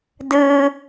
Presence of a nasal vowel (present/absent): absent